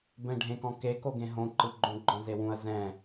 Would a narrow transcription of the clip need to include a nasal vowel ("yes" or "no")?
yes